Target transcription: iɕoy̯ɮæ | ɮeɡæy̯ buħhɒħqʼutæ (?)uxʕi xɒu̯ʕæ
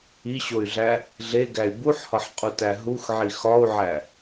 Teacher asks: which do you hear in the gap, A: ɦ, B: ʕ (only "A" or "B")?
A